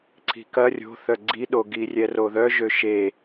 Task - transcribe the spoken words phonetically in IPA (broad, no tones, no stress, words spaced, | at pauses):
ǀʰi̤kɐ rʲo̤θœ ɡ͡ǀiɗo ɡirʲɛroðœ ʒøʃe